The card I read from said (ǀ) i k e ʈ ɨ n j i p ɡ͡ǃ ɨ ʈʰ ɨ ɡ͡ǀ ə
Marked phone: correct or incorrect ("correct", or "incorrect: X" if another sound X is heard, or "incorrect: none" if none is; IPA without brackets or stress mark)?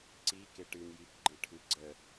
correct